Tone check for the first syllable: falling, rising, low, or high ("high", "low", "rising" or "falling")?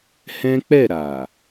high